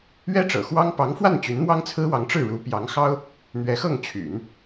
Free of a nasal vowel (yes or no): yes